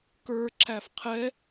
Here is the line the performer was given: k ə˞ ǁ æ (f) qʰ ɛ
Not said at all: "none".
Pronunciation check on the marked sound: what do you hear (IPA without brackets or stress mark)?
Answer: f